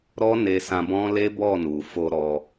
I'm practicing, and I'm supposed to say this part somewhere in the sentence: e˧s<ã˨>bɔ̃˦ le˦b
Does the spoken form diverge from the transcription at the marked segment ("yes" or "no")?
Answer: yes